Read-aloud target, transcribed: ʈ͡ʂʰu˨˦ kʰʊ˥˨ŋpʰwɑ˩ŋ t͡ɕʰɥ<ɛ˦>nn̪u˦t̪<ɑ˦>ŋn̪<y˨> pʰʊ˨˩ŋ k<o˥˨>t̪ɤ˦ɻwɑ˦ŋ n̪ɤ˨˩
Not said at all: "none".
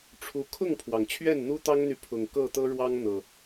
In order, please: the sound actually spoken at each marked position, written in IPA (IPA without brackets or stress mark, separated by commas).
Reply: ɛ˥˨, ɑ˦, y˨, ɤ˥˨